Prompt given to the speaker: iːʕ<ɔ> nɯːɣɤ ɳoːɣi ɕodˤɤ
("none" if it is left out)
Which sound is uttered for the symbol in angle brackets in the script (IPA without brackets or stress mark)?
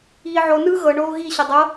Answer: o